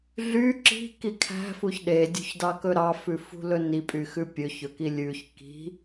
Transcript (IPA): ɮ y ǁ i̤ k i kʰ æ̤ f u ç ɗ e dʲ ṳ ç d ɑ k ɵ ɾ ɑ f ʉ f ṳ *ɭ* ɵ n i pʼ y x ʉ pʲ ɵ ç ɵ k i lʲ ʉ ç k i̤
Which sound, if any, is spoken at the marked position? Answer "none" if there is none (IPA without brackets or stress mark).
l